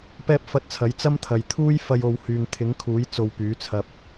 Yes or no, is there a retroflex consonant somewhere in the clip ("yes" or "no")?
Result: no